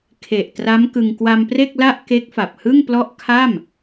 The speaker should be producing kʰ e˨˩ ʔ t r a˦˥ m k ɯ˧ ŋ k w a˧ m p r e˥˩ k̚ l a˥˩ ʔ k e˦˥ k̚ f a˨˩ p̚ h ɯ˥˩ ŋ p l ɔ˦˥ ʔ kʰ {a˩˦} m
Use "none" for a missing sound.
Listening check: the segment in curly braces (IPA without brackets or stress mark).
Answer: a˥˩